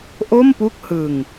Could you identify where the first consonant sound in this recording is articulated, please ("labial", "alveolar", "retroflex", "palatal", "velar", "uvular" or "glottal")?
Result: glottal